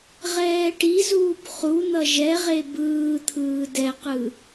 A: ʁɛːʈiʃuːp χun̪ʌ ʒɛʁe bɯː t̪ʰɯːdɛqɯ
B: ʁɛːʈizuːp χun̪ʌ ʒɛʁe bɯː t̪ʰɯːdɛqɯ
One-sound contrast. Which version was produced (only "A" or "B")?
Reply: B